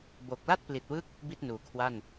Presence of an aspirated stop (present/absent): present